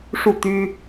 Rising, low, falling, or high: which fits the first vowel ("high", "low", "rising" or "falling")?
falling